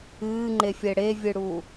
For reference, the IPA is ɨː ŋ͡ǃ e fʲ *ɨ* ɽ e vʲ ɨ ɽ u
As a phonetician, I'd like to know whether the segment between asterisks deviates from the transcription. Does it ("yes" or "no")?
yes